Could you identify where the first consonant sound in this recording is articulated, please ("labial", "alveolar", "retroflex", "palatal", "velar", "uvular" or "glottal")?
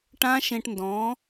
retroflex